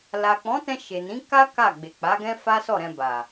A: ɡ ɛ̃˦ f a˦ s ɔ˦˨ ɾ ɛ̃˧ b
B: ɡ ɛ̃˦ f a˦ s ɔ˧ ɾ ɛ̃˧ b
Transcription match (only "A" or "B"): A